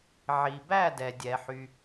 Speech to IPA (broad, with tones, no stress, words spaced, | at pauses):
ʕi˩ bæ˦˨dɛ˩dʲɛ˩ ħy˩